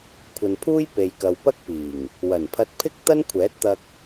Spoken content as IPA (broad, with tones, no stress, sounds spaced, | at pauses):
kʷʰ ɐ˨ n pʰ uː˥ j p e˨ j k ɐ˨ w p ɐ˥ k̚ p iː˨˩ ŋ | w ɐ˨˩ n pʰ ɐ˧ t̚ pʰ ɪ˥ k̚ t̪ ɐ˥ n kʷʰ ɛː˨˥ t̚ t̪ ɐ˧ k̚